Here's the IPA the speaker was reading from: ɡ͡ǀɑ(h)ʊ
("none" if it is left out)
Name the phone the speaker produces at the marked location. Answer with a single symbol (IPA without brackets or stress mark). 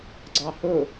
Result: h